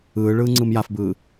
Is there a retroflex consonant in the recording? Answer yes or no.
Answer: yes